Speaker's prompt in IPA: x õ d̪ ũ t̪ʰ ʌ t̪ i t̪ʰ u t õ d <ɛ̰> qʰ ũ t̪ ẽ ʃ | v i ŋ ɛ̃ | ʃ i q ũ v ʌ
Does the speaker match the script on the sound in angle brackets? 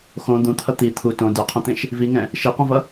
no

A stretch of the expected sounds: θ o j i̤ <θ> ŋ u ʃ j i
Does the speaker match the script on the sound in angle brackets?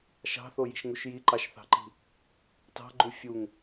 no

